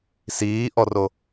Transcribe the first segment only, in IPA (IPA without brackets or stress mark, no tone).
s